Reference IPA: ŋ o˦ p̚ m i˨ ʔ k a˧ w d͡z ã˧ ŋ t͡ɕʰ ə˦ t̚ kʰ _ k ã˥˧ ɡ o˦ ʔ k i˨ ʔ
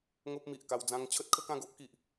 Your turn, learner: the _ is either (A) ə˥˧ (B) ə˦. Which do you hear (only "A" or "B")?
B